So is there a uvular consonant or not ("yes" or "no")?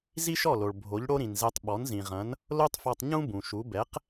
yes